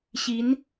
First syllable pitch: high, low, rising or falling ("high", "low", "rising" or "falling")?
rising